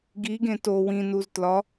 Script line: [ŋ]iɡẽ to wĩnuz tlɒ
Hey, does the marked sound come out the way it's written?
no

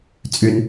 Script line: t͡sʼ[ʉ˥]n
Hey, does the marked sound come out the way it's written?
no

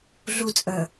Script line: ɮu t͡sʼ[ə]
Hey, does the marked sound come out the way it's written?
yes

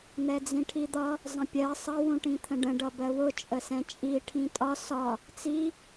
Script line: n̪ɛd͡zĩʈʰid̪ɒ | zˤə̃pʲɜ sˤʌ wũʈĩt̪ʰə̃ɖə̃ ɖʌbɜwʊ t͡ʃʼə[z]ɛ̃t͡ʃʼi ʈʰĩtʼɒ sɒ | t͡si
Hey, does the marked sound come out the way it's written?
no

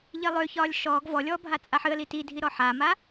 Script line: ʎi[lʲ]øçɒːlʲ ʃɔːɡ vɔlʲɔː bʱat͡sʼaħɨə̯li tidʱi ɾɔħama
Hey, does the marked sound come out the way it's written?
no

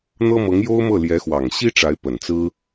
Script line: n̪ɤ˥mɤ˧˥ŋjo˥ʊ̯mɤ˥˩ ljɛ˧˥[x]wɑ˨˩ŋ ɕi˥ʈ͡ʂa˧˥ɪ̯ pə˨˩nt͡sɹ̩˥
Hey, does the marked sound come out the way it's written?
yes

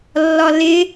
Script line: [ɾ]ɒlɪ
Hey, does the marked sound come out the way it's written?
no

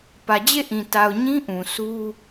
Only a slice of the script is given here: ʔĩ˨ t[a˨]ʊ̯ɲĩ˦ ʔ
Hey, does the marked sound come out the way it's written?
yes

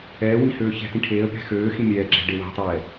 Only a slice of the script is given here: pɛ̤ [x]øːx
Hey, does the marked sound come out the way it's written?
yes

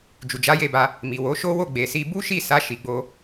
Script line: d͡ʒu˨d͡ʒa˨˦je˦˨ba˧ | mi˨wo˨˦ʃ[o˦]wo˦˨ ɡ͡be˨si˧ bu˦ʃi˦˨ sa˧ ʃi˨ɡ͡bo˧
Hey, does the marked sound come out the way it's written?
yes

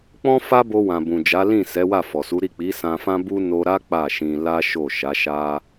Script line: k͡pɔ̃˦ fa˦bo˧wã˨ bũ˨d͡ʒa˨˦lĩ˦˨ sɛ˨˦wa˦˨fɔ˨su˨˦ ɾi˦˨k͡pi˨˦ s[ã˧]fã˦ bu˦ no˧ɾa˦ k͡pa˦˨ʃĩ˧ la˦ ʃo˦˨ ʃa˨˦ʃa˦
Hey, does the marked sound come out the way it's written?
yes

